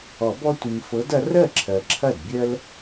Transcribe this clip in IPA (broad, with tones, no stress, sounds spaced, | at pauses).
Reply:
ɔ˨˩˦ b ɔ˦ tʷ i˨ ɲ f ɤ˨˦ d ɐ˨˦ r ɜ˥˩ ǁʰ ɜ˨ ǁʰ ɐ˥˩ d bʲ ɜ˦ l